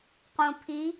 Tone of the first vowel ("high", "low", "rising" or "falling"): low